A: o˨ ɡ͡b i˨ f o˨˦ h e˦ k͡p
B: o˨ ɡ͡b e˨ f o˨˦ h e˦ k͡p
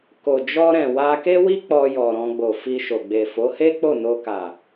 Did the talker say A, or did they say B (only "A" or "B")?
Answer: B